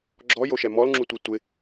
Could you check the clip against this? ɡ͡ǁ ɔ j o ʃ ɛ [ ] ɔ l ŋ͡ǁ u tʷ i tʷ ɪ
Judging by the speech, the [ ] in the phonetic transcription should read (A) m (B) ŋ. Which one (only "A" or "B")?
A